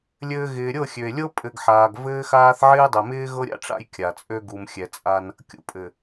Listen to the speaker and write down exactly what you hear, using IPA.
lʲɘː˨ ɣɪː˨ ɾʲɤ˦˨xʲø˨e̯lʲɤ˦ pʼɘ˨ɡ ħaː˨ɡvɘː˦xaː˦θ ʕɪː˦dˤɘ˨mɪː˦ ɣɤ˦ɾʲa̰˦ ʈ͡ʂa̰˦jkʲa˨t͡sʼø˦ ɡu˨mxʲɛ˨ t͡sʼa˦n | kʲṵ˨pʼɘ˨

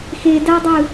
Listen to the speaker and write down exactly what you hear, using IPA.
xedadˤɯ

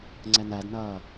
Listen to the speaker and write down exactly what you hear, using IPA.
ŋ͡ǀɛnædnɐː

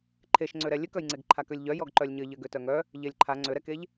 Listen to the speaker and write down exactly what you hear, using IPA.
ǃʰeʃŋ͡ǀøɾɛ lʲɘkœjŋ͡ǀeɡǃʰa kølʲʎœ jɔɡǃœlʲɲɘ ʎɘɡøtœŋœ | ʎelʲǃʰa ŋ͡ǀøɾɛkeʎ

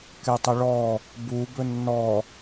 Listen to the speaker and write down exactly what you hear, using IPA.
kɛtˤəɭɔ | bu bɵnːɔ

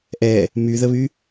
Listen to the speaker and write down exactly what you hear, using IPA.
ʔɛ | myðəβy

